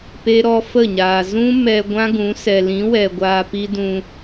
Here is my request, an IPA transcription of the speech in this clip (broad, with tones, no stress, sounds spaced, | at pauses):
p e˦ ɾ ɔ˦ f ə˦˨ ɲ aː˨ z ũ˦ m ɛ˧ ɡʷ ã˦ ɡ ũ˨˦ s ɛ˨ l ĩ˨˦ w ɛ˨ ɡʷ aː˧ p i˦ d ũ˧